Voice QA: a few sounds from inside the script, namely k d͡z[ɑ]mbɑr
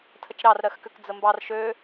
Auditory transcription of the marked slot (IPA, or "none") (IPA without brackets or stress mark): ə